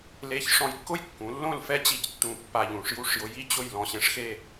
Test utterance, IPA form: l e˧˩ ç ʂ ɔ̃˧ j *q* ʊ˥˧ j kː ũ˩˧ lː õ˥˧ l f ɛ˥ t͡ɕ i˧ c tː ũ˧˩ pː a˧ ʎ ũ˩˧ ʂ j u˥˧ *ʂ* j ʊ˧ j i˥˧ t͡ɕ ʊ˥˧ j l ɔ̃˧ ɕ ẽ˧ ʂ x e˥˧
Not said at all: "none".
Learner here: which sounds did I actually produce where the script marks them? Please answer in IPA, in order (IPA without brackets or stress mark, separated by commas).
kː, ʂ